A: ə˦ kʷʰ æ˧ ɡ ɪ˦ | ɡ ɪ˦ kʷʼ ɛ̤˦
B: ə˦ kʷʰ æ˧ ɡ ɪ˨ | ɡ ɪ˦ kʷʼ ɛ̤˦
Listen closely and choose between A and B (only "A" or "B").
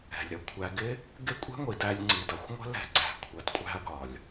A